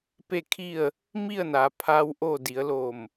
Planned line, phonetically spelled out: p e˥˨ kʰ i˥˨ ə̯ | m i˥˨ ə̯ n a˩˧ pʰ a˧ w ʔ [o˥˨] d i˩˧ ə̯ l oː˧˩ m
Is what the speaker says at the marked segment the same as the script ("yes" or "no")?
yes